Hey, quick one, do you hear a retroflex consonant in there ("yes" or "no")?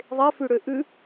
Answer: yes